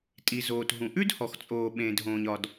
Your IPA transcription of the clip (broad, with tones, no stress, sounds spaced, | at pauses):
tʼ i˩ z oː˩ t ɦ ũ˩ ʔ ʉ˥ d h ɔ˩ x t͡sʼ oː˩ ɓ ẽː˩ d ɦ õː˩ ɲ ɒ˩ d